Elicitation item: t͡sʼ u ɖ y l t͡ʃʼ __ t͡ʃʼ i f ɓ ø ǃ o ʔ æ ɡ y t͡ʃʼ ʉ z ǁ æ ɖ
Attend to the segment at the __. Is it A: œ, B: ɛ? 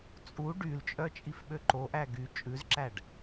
A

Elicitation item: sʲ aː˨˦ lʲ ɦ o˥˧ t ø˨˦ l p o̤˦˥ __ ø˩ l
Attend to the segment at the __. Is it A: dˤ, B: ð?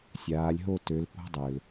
A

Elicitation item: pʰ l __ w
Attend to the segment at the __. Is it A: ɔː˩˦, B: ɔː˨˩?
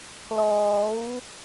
A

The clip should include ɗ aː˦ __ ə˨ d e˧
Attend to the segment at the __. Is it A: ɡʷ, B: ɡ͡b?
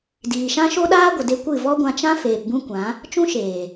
A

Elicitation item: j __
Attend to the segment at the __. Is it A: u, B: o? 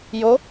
B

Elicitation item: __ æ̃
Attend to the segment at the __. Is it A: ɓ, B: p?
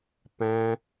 B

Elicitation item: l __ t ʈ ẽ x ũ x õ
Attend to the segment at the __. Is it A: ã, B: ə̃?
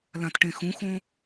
A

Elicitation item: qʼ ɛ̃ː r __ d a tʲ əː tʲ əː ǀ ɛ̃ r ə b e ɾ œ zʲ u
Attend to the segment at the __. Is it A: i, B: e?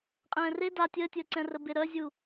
B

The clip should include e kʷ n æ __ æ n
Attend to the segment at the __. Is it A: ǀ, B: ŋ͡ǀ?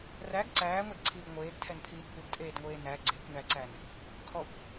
A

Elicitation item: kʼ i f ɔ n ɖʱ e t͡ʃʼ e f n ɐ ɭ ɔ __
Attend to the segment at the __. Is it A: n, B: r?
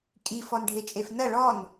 A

